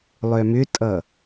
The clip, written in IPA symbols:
lˠ œ m ʏ tʼ ʌ

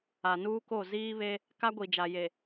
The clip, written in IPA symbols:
a˨ n uː˦ k o˦˨ z iː˦ β e˦ | k a˦ ɡʷ i˨ d͡ʒ a˨ j e˨

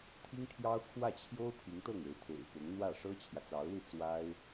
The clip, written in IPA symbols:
t̪ʰ i˥ ŋ t̪ʰ j ɑ˥ ʊ̯ kʰ w ä˥˩ t͡ɕʰ j o˥ ʊ̯ pʰ i˧˥ ŋ t̪ ɤ˥˩ ŋ e˧˥ ɪ̯ t̪ʰ ḛ˨˩ ɪ̯ p ʊ˧˥ ŋ n̪ w ä˥˩ ʂ ɤ˥ t͡ɕʰ j ä˨ t͡s ɑ˧˥ ʊ̯ l i˥˩ t͡s w a˥ ɪ̯

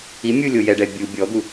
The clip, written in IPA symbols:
i mʲ u lʲ o j ɛ ɖ ɛ bʲ u bʲ ɔ d̪ u

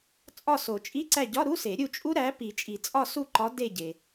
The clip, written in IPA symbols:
t͡sʼ ɒ˦˨ s o˨˩˦ t͡ʃʼ i˧˥˧ ǀ æ˦˨ ɟ ɒ˧˥˧ ɾ u˧˥˧ s e˨˩˦ ɾʲ u˦˨ t͡ʃʼ u˦˥ ɾ æ˨˥ p i˨˩˦ t͡ʃʼ i˨˩˦ t͡sʼ ɒ˦˨ s u˦˨ ǃ ɒ˨˥ d e˦˨ ɟ e˩

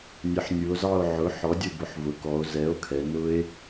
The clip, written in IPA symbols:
nʲ ə˩˧ ħ nʲ u˩˧ o̯ z ɑ˦˨ o̯ ʕ ʊ˩˥ ħ ɔ˩˥ dʲ ʊ˦˨ b ʊ˩˧ ħ v ʊ˩˧ k ɔ˩˧ o̯ z ɛ˩˥ o̯ kʰ ɛ˩˧ n ʊ˦˥ e̯

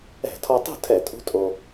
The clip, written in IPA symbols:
ɛ̤˧˩˧ tʰ ɔ˧ tˤ ṳ˥˨ tʰ ɛ˧˩˧ tʼ ṳ˦˥ tʼ o˧

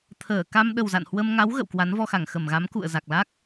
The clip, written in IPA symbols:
t̪ʰ əː˧˩ k a˧ m ɗ ə˨˩ w z a̰˧˨ n h w ə˧ m ŋ a˨˦ w ɣ ə̰˧˨ w k w a˨˦ n v ɔ˧ x a˧˩ ŋ x ə˧˩ m ɣ a˨˦ m k ṵ˧˨ ə̯ z a˨˩ k̚ l a˦˥ k̚

